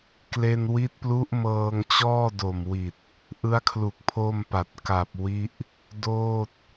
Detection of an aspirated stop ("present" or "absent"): present